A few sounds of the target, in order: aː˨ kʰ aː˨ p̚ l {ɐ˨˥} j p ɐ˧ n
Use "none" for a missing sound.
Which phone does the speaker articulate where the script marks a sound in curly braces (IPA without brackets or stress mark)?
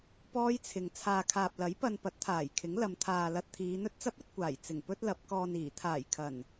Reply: ɐ˨˥